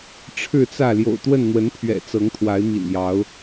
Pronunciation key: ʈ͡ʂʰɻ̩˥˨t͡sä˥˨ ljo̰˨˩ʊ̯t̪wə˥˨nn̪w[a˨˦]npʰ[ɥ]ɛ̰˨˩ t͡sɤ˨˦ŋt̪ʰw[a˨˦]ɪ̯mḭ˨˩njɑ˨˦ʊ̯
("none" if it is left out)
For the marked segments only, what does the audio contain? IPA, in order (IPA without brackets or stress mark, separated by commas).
ə˨˦, ɥ, a˨˦